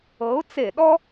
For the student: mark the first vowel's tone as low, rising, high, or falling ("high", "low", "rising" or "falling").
rising